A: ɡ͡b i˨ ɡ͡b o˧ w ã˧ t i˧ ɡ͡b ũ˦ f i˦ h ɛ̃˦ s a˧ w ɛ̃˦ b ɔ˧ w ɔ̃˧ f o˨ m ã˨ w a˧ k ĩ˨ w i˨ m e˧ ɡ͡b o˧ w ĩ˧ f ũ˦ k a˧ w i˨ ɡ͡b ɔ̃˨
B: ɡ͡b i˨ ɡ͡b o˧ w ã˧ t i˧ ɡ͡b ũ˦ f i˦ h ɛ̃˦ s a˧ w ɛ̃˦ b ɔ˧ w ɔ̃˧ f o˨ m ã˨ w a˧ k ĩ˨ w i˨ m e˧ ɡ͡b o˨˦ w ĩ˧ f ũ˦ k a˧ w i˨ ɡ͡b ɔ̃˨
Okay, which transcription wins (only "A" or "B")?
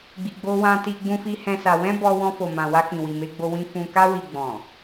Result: A